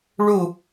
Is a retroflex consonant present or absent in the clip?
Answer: present